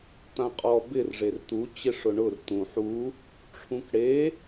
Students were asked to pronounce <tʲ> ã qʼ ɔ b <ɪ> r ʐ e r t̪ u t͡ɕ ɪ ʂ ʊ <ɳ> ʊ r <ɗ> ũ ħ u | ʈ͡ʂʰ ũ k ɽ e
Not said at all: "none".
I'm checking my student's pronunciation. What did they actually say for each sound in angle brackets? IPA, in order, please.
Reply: t̪, ɪ, ɳ, t̪

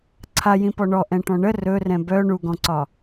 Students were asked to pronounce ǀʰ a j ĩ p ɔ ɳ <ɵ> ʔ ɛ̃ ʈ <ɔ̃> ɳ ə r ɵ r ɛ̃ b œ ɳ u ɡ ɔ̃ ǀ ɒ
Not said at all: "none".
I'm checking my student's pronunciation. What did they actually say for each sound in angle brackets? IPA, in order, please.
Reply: ɔ, ɔ̃

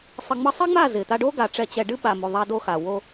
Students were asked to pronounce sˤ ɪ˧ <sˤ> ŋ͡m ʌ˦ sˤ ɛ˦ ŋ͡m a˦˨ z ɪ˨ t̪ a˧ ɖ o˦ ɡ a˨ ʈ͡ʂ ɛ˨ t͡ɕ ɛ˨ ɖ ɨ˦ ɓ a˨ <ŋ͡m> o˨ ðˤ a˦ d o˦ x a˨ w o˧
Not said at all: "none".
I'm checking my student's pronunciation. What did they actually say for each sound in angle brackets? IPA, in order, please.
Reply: none, m

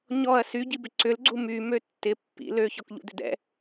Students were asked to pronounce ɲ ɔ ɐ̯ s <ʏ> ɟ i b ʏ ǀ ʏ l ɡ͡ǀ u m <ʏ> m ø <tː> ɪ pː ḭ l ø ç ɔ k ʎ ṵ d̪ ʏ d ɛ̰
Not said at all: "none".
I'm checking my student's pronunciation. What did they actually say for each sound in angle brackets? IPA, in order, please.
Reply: y, y, tː

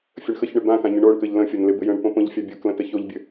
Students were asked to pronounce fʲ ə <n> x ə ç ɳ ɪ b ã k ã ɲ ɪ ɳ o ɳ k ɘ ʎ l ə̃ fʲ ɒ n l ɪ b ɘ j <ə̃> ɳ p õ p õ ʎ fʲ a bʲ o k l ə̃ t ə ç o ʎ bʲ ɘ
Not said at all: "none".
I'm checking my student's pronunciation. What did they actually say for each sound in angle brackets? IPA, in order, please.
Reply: ɳ, ə̃

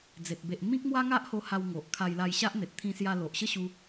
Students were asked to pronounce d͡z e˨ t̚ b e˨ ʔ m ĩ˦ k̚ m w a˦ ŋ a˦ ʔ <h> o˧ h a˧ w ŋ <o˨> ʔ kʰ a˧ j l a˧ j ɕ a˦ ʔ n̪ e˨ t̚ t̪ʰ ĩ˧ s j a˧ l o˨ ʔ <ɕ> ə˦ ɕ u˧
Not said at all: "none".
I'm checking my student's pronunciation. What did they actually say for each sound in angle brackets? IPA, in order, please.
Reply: h, o˨, ɕ

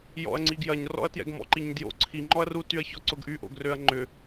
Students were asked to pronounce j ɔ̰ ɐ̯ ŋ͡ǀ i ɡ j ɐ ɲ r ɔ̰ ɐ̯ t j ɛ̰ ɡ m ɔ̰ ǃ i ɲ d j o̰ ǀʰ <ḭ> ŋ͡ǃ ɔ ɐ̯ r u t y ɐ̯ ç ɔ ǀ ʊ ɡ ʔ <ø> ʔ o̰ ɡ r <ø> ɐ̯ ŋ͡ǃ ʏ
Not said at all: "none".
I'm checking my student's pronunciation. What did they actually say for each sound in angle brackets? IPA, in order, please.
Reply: i, y, ø

